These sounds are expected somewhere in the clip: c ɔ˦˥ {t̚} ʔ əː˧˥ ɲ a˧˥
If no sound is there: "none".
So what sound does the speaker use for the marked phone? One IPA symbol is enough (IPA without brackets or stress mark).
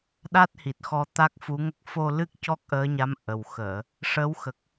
k̚